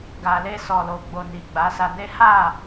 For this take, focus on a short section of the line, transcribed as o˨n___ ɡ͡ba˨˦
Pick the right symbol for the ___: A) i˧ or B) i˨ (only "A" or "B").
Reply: B